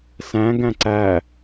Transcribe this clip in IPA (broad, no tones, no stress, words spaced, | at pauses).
sæ̃ ɡæ̃ǀæ